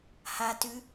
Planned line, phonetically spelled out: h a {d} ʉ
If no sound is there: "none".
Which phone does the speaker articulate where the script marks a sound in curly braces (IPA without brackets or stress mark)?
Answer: t